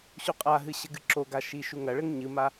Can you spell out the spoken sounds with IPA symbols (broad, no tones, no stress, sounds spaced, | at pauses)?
ɕ u qʼ a ɦ ɨ ɕ ɘ ɡ ɨ ǁ o ɡ a ʃ i ʃ u ŋ ɐ ɭ ɘ ŋ ɲ ɨ m a